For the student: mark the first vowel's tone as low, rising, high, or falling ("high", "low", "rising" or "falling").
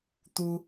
high